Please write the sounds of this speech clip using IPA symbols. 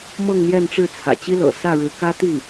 m ɤ˥˧ ŋ n̪ j ɛ˥˧ n ʈ͡ʂ ɻ̩˥˩ t͡sʰ ä̰˨˩ t͡ɕ i˥ l ɤ̰˨˩ s ä˥˩ ɻ ɻ̩˧˥ k ä˥ t̪ i˥˩

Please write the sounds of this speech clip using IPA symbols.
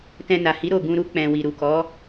t ɛ̃˧ n a˨ h i˨˦ ɾ o˦˨ ɡ ũ˧ ɾ u˦ k͡p ɛ̃˧ w i˨ ɾ u˨ k ɔ˨˦

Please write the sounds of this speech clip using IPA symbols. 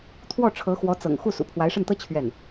t̪ʰ w ɔ˥˩ ʈ͡ʂʰ ɤ˧˥ x w ɔ˧˥ t͡s ɤ̰˨˩ ŋ x u˥˩ s ṵ˨˩ pʰ w a˧˥ ɪ̯ ʂ ə˥˩ n t̪ ɤ˥ t͡ɕʰ ɥ ɛ˥˩ n

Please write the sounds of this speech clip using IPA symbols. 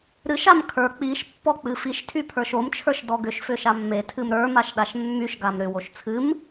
ɾ ɨ ʃ a m kʰ ə˞ k͡p i ʃ pː ɔ k͡p ɨ f i ʃ tʰ y pʰ ə˞ ʃ o m t͡ʃʰ ə˞ ʃ d ɔ ɡ ʏ ʃ f ʏ ʃ a mː e tʰ ɨ m ɾ ə˞ m a ʃ ɗ a ʃ mː y ʃ ɡ a m ɾ ʏ w o ʃ t͡sʰ ɨ m

